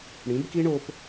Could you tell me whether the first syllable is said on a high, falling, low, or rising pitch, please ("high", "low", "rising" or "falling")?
rising